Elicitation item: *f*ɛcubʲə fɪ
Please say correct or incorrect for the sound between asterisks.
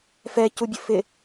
correct